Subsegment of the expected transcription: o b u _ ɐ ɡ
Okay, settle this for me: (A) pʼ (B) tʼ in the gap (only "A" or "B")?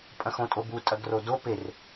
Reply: B